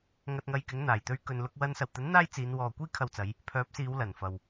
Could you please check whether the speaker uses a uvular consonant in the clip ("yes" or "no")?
no